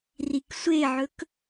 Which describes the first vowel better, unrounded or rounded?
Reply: unrounded